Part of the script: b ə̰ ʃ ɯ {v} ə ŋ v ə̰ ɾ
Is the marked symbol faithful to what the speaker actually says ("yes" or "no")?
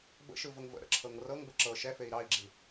yes